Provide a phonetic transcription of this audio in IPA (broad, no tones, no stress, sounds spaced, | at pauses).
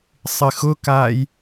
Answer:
sˤ ɪ x ʊ k aː j